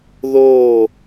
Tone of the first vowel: falling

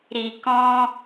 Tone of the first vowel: low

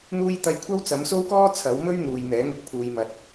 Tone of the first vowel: high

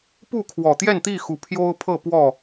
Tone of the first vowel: falling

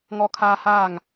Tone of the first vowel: high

